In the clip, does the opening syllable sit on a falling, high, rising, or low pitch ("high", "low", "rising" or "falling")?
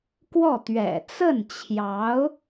falling